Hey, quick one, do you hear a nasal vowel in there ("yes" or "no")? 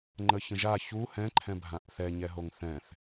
yes